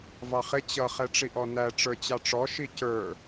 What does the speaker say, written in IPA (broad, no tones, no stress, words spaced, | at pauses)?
vɑχɪ t͡ɕʌ χɛʈ͡ʂiʔɔnæ ʈ͡ʂə˞t͡ɕɑʈ͡ʂɔ ʃicə˞